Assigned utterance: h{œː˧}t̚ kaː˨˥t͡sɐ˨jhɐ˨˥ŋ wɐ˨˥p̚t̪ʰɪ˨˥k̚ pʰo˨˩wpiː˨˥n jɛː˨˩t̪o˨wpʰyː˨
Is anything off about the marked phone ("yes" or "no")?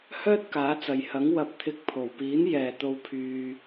yes